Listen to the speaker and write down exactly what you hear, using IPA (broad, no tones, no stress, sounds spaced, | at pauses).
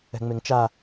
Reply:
ɛ̤ ŋ͡m e ŋ t͡ʃ a